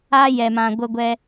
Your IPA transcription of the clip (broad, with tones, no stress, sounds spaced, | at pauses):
a˦ j ɛ˨ m ã˨ ɡʷ ə˧ ɡʷ ɛ˧